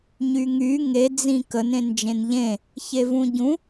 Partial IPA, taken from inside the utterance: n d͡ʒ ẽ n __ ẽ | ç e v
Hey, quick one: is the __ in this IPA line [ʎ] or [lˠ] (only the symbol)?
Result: ʎ